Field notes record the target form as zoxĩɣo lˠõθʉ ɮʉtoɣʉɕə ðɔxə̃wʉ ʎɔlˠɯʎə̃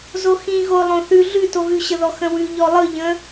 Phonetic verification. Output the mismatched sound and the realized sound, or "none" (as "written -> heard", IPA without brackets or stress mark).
none